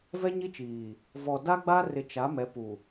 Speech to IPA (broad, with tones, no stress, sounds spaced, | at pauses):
v ɛ˦ ɲ i˦ t͡ʃ iː˨ | v ɔ˨ d a˦ ɡ͡b a˦ r ɪ˨ t͡ʃ a˨˦ m ɛ˨˦ p u˨